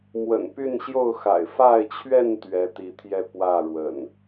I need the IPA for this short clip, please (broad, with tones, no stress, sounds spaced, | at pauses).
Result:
m w ə̰˨˩ n p y˥˨ n ɕ j o˥˨ ʊ̯ x a̰˨˩ ɪ̯ f a˥˨ ɪ̯ t͡ɕʰ ɥ ɛ˥˨ n t̪ ɥ ɛ˨˦ t̪ i˨˦ t̪ʰ j ɛ˥˨ p w ä˥˨ ɻ w ə̰˨˩ n